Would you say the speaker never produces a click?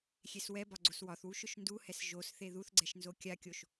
no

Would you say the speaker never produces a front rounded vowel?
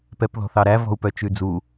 no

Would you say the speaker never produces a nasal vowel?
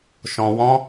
no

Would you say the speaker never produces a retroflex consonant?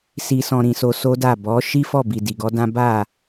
yes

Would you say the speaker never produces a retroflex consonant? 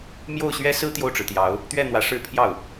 no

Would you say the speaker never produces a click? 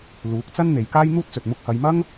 yes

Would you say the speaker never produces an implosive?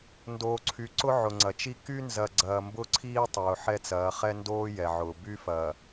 yes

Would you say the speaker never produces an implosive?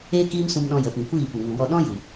no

